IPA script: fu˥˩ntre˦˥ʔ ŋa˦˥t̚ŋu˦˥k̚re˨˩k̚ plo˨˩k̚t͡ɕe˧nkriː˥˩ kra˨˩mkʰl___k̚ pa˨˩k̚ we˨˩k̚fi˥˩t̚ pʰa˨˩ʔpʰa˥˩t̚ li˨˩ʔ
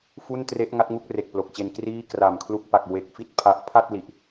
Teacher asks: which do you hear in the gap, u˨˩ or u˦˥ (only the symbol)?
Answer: u˦˥